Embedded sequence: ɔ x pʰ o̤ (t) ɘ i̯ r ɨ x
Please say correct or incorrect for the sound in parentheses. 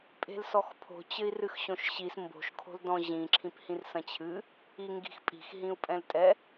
incorrect